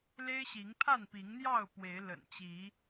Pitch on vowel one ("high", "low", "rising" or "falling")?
high